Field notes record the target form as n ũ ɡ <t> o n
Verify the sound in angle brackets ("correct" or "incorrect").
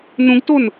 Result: correct